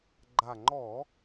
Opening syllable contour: low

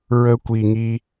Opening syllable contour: high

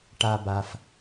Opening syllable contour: low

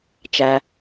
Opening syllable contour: low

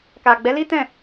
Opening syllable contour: low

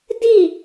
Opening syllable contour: falling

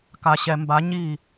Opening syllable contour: low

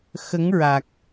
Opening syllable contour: rising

